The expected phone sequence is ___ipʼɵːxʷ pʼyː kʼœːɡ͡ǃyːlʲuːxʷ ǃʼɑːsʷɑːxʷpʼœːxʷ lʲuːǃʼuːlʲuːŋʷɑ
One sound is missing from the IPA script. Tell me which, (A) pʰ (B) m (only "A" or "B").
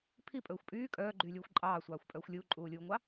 A